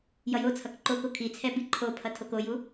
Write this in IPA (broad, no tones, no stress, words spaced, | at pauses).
jʌjot͡sʰʌk ǃoko kʰit͡sʰɛ biǃʰopʰʌ tʰokoju